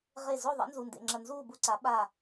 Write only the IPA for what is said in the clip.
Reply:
ʁ e˧˩ z o˥˨ ðˤ ḛ˨˥ n z u˩˧˩ n d ḛ˩˧˩ ŋ͡ǁ ɐ˧˩ n z uː˥˨ b u˥˨ ǀ a˨˥ ɓ a˧˩

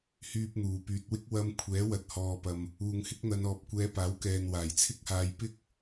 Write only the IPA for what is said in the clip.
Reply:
h yː˧ p̚ n̪ uː˨˩ p yː˨ t̚ w ɪ˥ k̚ w ɐ˧ m kʷʰ ɛː˨˥ w ɐ˨ t̚ h ɔː˨ p ɐ˨ m | uː˨ ŋ h ɪ˥ k̚ n̪ ɐ˧ n ɔː˨ p̚ kʷ ɛː˨˧ p aː˨˥ w k ɛː˨ n w aː˨˩ j t͡sʰ ɪ˥ k̚ h aː˧ j p ɪ˥ k̚

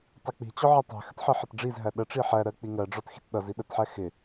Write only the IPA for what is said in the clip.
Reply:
tˤ i k͡p i̤ t͡ɕ ɔ ʕ ə tˤ æ̤ x ə t ħ ɜ ħ ə t ɖ͡ʐ i z ɦ æ ɗ ə ʈ͡ʂ i ħ æ ɾ ɜ k͡p i ŋ ɜ ɖ͡ʐ ɔ t x i̤ t ɗ ʌ z i ɗ ə t ħ æ x ɪ

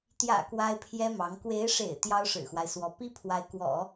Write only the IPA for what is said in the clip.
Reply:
t̪ j ä̰˨˩ k w a˥ ɪ̯ pʰ j ɛ˥ m ɑ˧˥ ŋ k w e˧˥ ɪ̯ ʂ ḛ˨˩ ɪ̯ t̪ j ɑ˥ ʊ̯ ʂ ɻ̩˨˩ x w a˦ ɪ̯ s w ɔ˧˥ p i˥ pʰ w a˧˥ ɪ̯ k w ɔ̰˨˩˦

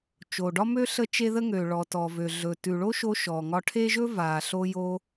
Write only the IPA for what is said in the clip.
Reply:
t͡ʃ o˨ ɖ ɒ˦ m ø˦ ɬ ə˦ t͡ʃ e˦ ð ə˦ ŋ ø˨ ɭ ɔ˨ t ɔ˨ v ø˨ ɮ ɵ˨ t ʉ˨ ɭ o˦ ʃ o˧ ʃ ɔ˨ ŋ ɒ˧ ʈʰ e˦ ʒ ɵ˦ v a˨ ɬ o˧ j o˧

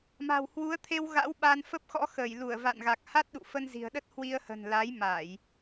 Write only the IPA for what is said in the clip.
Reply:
m a̤˨˩ w h w u˨˦ ə̯ t̪ʰ e˧ w ɣ a̰˧˥ w ɓ a˧ n f ə˦˥ p̚ x ɔ̰˧˥ x əː˧˩ j l u˧˩ ə̯ v a̰˧˨ n ɣ a˨˩ k̚ h a˦˥ t̚ ɗ ṵ˧˨ f ə˧ n z i̤˨˩ ə̯ ɗ ə˦˥ t̚ h w i˧ ə̯ h ə̤˨˩ n l a˨˦ j m a˧˩˨ j

